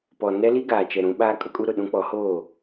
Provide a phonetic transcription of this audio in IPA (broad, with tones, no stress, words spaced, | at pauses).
pɔ˨ nɛ˦li˦ ɡaː˨t͡ʃɛ˨ ɾũ˨˦ɓaː˦ kʼʊ˦kʼu˦ ɾʊ˨ɗũ˦k͡pɔ˨˦hoː˦˨